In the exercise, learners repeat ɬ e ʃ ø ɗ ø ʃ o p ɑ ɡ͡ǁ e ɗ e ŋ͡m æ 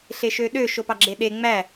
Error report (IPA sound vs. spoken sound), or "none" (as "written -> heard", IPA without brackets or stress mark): none